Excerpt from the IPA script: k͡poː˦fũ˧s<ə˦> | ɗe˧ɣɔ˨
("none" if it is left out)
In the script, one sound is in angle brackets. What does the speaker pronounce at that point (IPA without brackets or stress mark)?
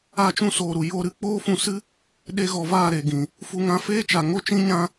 ɨ˦